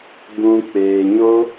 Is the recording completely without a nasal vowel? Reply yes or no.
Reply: no